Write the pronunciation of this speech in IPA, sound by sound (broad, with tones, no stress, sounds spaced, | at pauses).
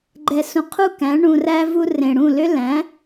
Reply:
ɡ͡ǃ ɛ˩ s ũ˩ qʰ u˥˩ k æ̃˩˥ ɳ ũ˩ r æ˧ v u˧ r ẽ˩ ɽ ũ˥˩ l ʏ˥ l æ̃˩˥